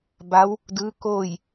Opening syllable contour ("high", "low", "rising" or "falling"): rising